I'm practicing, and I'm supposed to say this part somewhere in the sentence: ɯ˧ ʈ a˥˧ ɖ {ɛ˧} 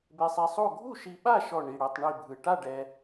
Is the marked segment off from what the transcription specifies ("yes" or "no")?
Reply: no